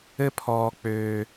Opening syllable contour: falling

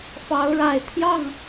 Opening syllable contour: rising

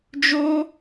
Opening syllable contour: high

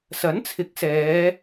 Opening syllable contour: rising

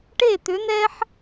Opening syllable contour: falling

